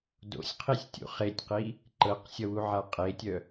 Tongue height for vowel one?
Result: mid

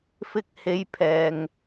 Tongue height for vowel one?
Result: high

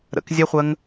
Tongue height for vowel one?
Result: mid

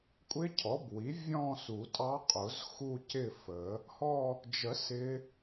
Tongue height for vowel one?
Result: high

